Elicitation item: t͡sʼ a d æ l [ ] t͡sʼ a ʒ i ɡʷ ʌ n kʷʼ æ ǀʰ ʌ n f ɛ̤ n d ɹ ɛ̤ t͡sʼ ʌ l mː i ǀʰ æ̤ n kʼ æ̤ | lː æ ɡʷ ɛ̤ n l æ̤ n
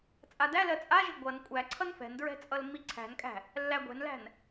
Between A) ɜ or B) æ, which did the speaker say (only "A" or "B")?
A